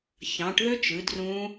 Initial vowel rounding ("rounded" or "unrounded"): unrounded